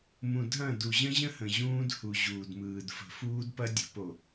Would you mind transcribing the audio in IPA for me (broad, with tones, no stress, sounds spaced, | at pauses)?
m ũ˨ dʱ ɐ̃˦˨ d u˨ ʑ ə̃˦ ʑ ə̃˦ h ə̃˨ ʑ ũː˦ d h u˨ ʑ uː˨ d m ɯː˨ d f ə̤˨ f uː˦ d p ɐ˦ dʲ ə̤˨˦ p o˨